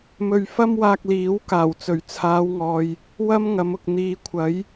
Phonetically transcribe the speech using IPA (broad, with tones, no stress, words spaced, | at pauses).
mɵ˧ɥfɐ˥mwaː˧k̚ liː˨˥w kaː˨˩wt͡sɵ˨˩ɥt͡sʰaː˨˧wŋɔː˨j | wɐ˥mŋɐ˨˧mʊ˨k̚ n̪iː˨˧kʷʰɐ˨˥j